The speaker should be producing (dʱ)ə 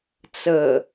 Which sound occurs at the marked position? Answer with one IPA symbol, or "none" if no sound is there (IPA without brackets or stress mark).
t͡s